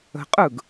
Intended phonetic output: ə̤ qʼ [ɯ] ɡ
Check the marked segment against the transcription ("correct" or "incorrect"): correct